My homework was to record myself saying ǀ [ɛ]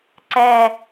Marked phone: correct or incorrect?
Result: correct